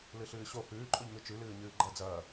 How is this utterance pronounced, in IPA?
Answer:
lɨɬɨːɕo hʉːǃʼoʎŋɨ t͡ʃʉlɨː ɲɨːɡ͡ǃɐ d͡zɐː

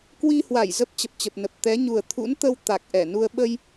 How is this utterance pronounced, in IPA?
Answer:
kwi˧hwa˧˩j zə˦˥p̚ t͡ɕə˨˩p̚t͡ɕə˨˩p̚nə˨˩p̚ t̪ɛ˨˦ɲu˨˩ə̯ t̪ʰṵ˧˥nt̪ə˧w t̪a˨˩k̚ʔɛ˧˩nu˧ə̯ ɓə˧j

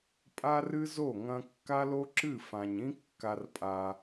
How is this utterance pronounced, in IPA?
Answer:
pʼa˦rɨ˦zo˦˨ ŋɐ̃˧kːa˦lo˦ǁɨ˦˨ fã˨ɲĩ˦ kːa˧rpʼa˧

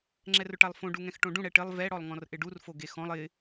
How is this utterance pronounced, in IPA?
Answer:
ŋ͡ǁɛrʊʈalˠfõ ɖuŋɛ̃xʈõɖũ ɽɛʈɪlˠ vɛ ɽɔlˠŋɔ̃rʔɪɖur foɡexɔ̃lˠ ɪ

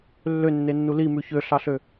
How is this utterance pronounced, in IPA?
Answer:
lːønːenːu limʉ çøɬɑɬø

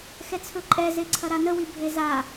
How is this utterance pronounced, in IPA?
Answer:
xɛt͡sʰɵǃʼɛ zeǀʰɐɾanə wibʱeza

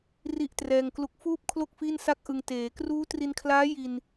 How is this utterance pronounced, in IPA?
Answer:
ri˥˩ʔtrɛː˧ŋklu˦˥k̚ fuː˥˩p̚kʰlo˥˩k̚ fi˥˩nsa˥˩k̚ʔɯ˧ŋ teː˩˦kruː˦˥tri˧nkʰlaː˦˥ ji˧n

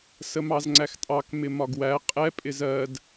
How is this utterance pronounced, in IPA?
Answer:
səmɑzŋ͡ǀæxtʼɑk mɪmɒɡwæ qʼɛ pʼɪzɜd

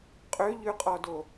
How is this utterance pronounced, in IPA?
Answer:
qʼøʎʉqʼɔdo

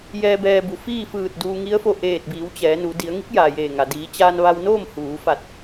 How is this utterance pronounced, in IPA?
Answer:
jɛː˧ bɛː˧ bu˩fiː˥˨fɯː˧˩t̚ duː˧ŋi˧˥ə̯fo˧ ʔeː˧˩t̚biː˩˧w t͡ɕɛː˩˧nu˩˧ di˩˧ə̯ŋi˧˥k̚ jaː˩jeː˧˩ŋa˩ diː˩˧t͡ɕaː˧nʋa˧wnoː˥˨m huː˩˧fa˧˩t̚

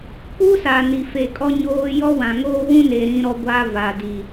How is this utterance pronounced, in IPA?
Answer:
k͡pu˦sa˨ ni˨fe˨kʼɔ˦ɲoː˦ jɔ˦wã˨ŋoː˦ wũ˦ne˨ ɾĩ˦ɾɔ˦ ɡʷa˦va˨di˨

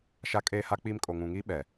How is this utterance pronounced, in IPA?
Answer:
ʃa˦kʼeː˦ha˦k͡piː˦m kʼo˨ŋũ˨ŋi˦ ɓɛ˨

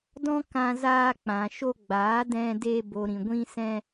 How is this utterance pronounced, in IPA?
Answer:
dɔ̃˦kã˧ zaː˧k͡pã˨ʃo˧ɡ͡baː˨˦ dɛ̃˧de˧ bo˨ɾĩ˨ ɡʷĩ˧sɛ̃˧

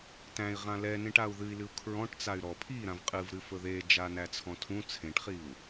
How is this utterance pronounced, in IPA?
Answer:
tæ̃i̯ʁã lɛnẽʈau̯ ðɨi̯lɨu̯ kʰɹɔ̃ʈt͡say̯ ɾɔ pʰiɾãv qʼɨvɾɨfɵ ðed͡ʒanæt͡sʰɔ̃ tʰũ t͡sʰẽʈχiu̯

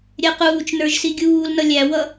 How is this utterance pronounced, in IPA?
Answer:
ɾʲɛquːt͡ʃnə˞ʒ siɡʲuːlnʌ lʲæwʌ

